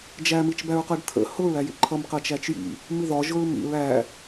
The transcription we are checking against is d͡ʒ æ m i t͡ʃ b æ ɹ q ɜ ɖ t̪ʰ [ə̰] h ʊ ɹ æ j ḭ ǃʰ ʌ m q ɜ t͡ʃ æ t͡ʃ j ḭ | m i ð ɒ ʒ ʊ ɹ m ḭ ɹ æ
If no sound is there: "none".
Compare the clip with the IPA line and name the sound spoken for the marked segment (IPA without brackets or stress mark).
ə̰